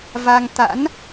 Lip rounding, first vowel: unrounded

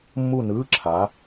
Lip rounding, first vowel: rounded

